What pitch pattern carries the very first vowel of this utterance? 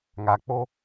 low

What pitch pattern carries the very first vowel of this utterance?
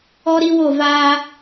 high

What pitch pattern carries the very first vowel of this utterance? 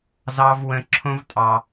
high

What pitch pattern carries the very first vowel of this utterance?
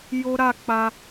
high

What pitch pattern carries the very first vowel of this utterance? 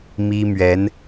high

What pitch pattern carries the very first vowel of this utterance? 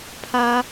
high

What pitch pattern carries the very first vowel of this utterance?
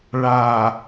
low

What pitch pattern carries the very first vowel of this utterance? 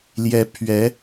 rising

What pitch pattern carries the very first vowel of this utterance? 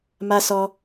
high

